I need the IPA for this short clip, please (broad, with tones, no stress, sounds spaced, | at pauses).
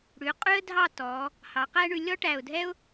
ɽ ʉ˩˧ qʼ ʉ˥ ə̯ dʱ ɑ˥˧ t ɔ˩˧ | h ɑ˩˧ q æ˥ ɳ ʉ˧ lʲ ɔ˥ ʈ æ˧˩ ʊ̯ dʱ ɛ˥ ʊ̯